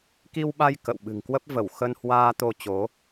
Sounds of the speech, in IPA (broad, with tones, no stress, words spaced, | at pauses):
ki˧wɓa˧j kə̰˧˨w ɓɨ̤˨˩ŋkwə˦˥p̚ və˧˩wxə˧nhwaː˧ t̪o˧t͡ɕo˨˦